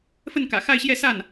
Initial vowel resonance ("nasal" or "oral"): oral